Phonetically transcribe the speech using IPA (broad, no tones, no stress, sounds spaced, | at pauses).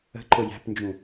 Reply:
ə̤ ǃ ʊ j æ̤ p n d͡ʒ ũ